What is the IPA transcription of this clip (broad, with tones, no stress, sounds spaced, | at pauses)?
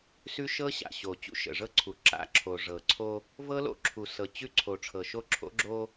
s ʉ˦ ʃ ɤ˦ ɕ a̰˨ ɕ o˨ t͡ɕ ṵ˦ ʃ ə̰˨ ʐ ɤ˦ ǀʰ u˨ ǁ a̰˦ ǁʰ o˨ ʐ ɤ˨ ǀʰ o˦ | v ɤ˦ l o̰˦ ǁʰ u˨ s ɤ˨ t͡ɕ ʉ˦ ǀʰ o˨ ʈ͡ʂʰ ɤ˨ ʃ o˦ ǁʰ o̰˦ ɡ͡ǁ o˦